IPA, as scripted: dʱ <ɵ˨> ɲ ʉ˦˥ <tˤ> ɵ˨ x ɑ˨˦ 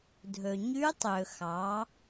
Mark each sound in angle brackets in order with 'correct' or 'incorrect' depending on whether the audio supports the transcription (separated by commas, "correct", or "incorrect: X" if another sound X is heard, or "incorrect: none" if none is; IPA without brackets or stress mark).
correct, correct